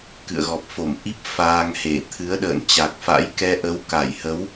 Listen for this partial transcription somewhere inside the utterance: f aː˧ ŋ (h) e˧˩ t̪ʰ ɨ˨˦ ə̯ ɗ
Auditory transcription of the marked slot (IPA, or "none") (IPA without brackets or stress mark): h